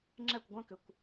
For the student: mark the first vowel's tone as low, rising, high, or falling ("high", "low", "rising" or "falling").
falling